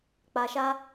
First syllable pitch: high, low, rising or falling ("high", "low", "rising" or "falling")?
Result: low